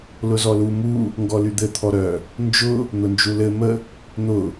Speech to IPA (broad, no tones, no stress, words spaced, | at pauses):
lʊzɔlu mu | ŋɡɔlyd̪ɘ t̪ʰɔɾœ | nd͡ʒʊ | n̪ʊnd͡ʒulɘ mə | n̪ʊ